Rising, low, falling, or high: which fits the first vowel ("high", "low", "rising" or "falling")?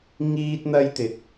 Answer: high